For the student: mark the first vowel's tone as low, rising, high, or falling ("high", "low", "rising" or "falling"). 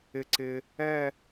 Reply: low